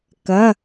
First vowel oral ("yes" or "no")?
yes